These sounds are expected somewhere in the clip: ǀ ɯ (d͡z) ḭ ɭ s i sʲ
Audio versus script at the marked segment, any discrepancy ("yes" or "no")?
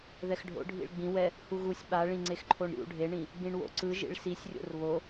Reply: yes